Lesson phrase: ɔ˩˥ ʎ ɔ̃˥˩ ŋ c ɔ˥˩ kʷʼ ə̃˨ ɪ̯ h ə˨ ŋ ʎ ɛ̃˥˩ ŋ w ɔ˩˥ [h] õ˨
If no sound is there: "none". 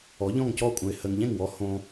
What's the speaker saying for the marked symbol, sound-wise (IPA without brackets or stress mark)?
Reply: h